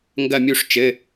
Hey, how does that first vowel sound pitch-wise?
falling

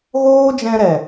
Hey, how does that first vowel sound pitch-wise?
high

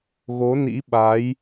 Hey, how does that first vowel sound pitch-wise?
rising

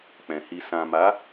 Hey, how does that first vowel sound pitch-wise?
low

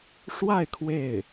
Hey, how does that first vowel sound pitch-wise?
falling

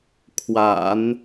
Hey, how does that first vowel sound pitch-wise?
low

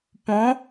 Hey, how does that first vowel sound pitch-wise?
rising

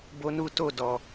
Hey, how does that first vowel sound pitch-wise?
high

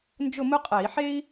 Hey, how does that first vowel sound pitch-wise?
falling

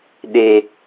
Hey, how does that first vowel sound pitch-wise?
high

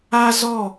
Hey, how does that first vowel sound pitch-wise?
high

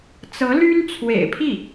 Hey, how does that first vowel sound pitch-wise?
rising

